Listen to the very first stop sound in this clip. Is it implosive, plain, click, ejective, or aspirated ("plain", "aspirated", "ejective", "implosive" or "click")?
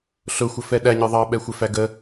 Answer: implosive